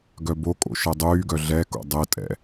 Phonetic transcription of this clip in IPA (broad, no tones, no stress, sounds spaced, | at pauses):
ɡ œ b o kʼ o̰ ʃ ɛ dˤ yː ɡ œ ɮ ɛ k o̰ dˤ e tʼ ɛ̰